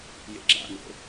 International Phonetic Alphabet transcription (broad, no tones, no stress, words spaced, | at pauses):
jḛɡ͡ǁa̰no̰